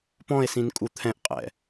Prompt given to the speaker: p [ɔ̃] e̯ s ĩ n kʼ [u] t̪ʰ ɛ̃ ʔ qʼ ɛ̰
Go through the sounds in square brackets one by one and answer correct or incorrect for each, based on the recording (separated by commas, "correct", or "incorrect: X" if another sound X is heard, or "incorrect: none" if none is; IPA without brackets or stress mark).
correct, correct